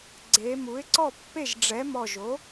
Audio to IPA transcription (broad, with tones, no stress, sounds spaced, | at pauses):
ɡ͡ǀ e˩˧ m u˩˥ ɪ̯ ǀ ɔ˥˩ pː e˥˩ ʒ ɖ͡ʐ ɛ˩˥ m ɔ˧˩ ʒ o˩˥